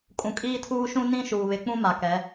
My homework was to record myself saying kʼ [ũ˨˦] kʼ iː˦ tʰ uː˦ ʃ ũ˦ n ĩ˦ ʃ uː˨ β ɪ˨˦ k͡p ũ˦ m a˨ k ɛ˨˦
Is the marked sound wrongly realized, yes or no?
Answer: yes